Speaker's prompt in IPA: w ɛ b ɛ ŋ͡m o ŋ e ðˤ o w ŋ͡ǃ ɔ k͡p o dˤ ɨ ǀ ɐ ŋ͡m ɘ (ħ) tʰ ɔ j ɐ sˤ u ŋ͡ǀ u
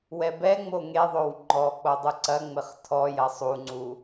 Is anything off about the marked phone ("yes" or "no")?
yes